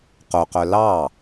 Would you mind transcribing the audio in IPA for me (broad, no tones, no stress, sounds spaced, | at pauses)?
q o q œ l ɑ